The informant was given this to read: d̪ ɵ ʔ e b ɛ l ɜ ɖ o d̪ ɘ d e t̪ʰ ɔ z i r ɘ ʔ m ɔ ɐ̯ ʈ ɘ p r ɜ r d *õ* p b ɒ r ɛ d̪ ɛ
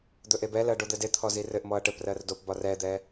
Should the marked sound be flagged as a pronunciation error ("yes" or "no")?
yes